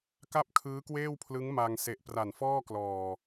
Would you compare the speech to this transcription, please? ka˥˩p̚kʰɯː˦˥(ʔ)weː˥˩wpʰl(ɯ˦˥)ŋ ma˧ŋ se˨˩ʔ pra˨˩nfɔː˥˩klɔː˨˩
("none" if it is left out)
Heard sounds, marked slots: k, ɯ˦˥

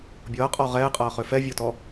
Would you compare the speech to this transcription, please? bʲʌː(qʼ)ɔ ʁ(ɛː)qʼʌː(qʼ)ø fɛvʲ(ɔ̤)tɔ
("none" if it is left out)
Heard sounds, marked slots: qʼ, ɛː, χ, ɔ

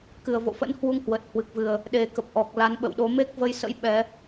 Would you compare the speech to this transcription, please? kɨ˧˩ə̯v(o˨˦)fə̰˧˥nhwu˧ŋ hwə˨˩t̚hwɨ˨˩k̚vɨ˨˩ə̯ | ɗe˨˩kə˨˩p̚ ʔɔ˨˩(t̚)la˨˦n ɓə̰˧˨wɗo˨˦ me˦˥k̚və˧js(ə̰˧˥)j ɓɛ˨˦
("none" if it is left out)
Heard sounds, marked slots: o̰˧˨, k̚, ə̰˧˥

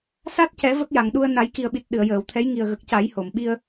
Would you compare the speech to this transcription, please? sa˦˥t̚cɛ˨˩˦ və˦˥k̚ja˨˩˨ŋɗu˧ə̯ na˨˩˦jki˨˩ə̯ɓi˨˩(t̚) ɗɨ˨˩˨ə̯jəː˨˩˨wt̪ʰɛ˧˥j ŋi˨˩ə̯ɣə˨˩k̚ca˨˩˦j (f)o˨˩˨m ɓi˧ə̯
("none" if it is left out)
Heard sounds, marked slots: t̚, h

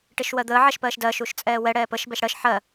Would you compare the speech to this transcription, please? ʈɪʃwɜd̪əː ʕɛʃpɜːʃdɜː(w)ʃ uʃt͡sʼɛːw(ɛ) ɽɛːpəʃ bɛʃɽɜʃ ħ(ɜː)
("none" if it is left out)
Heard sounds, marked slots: none, ɛ, ɜ

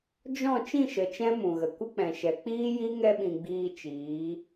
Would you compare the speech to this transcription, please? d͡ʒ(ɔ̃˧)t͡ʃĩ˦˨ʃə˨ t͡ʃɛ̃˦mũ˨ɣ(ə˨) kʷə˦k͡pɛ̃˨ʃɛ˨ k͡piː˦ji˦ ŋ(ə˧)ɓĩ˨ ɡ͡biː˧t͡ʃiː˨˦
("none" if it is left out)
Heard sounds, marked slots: ɔ̃˦˨, ə˨, ɛ˧

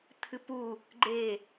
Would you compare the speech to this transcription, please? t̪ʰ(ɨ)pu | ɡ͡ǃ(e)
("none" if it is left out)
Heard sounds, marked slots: ɨ, e

